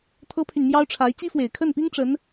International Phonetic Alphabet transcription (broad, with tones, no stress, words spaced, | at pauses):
t̪ʰɤ˥pʰy˨nmjɑ˥ʊ̯ʈ͡ʂʰa˧˥ɪ̯ t͡ɕi˥fwe˨˩ɪ̯kʰə˥˩npi˥ŋ ʈ͡ʂə˧˥n